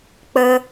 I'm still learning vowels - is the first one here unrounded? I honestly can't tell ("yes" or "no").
yes